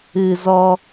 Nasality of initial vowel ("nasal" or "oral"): oral